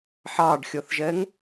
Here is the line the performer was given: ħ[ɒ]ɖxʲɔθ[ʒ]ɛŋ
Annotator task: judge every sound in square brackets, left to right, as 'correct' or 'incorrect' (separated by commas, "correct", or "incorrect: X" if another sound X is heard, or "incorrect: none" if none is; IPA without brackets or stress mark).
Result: incorrect: ɑ, correct